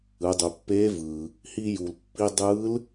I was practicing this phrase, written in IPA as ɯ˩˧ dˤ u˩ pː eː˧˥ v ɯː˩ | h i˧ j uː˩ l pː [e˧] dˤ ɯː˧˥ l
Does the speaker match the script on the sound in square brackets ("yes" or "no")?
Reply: no